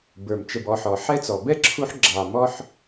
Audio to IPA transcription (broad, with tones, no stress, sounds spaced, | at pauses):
b ə˞˩ m t͡ʃ ə˨ b ɔ˨ ħ ɔ˩ ħ ɛ˥ t͡s ɔ˩ b ɛ˥ ǁʰ u˦ ħ ɡ͡ǁ ɑ˨ m ɔ˥ ħ